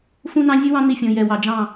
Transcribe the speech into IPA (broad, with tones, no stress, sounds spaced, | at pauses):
f ũ˦ n ɑ̃˦ zʲ u˦ w ɑ̃˦ n̪ i˦˨ fʲ ɔ̃˨ j ɛ˨ w ɑ˨ d͡ʒ ɑ̃˦˨